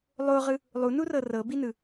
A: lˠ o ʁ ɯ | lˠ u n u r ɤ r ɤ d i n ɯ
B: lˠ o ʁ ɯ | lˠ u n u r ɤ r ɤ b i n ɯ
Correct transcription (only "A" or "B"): B